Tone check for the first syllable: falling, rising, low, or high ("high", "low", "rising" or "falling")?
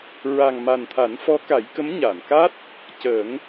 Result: low